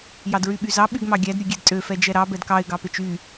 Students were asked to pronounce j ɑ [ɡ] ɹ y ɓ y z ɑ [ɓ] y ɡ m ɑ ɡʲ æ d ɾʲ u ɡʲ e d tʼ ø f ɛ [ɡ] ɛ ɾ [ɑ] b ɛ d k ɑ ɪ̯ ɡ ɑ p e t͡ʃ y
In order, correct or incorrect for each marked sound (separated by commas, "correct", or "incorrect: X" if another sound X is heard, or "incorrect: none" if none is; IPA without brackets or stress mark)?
incorrect: d, correct, incorrect: d͡ʒ, correct